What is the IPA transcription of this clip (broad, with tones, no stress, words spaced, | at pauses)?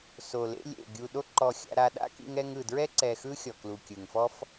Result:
so˨lḛ˧lʲ ḛ˨ ɡʲu˨ɗo˧ǃɔ˨ xʲa̰˧ɾa˧ ɗa̰˦kḭ˧ŋ ɛ˧ŋɯ˨dɹɛ˦ ǀɛ˨xɯ˧ xʲɔ˨klu˨kʲɯ˨ŋfɔ˦f